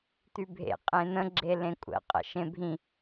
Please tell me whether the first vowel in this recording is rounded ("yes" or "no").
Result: yes